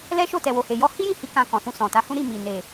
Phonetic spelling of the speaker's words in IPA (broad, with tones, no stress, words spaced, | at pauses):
lɛ˦ʃo˦˨ tɛ˨wo˨he˨jɔ˧ hi˦jĩ˦˨hi˨˦ kã˧kɔ̃˨sũ˧ sɔ̃˨ta˨˦hũ˦ ɾi˦˨mi˨ ne˨